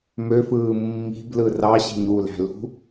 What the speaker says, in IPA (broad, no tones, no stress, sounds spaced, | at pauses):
m ø f ɯː mː i̤ b l ɯ r ɑ ɕ e̤ ɲ u l æ̤ l ṳ